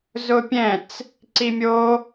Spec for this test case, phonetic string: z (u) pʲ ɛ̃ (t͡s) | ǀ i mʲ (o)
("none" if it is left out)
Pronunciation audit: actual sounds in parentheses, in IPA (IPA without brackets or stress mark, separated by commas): ʊ, t͡s, o